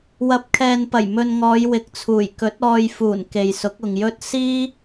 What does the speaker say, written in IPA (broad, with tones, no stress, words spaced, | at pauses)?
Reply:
wɐ˨˥p̚kʰɛː˨npɐ˨˩j mɵ˧n ŋɔː˨˧jwɪ˨k̚t͡sʰuː˨˩j kɵ˨˥t̚ ɔː˧jfuː˨˩nke˨jsʊ˨˥k̚ ʊ˨ŋjɵ˥t̚ siː˥